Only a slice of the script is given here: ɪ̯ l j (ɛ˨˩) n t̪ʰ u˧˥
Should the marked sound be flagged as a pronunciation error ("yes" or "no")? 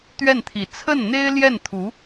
yes